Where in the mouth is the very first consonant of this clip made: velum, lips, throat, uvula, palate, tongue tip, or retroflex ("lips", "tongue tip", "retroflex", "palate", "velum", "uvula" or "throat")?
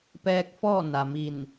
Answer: lips